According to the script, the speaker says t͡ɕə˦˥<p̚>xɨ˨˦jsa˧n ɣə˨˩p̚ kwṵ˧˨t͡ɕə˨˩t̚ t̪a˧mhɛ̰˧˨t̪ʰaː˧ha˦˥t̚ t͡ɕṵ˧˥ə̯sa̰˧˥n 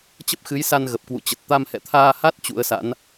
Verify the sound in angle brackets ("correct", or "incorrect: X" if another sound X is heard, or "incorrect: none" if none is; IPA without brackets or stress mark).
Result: correct